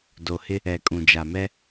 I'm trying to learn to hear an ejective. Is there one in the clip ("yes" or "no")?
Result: yes